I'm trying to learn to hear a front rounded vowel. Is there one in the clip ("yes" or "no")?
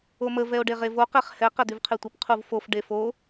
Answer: yes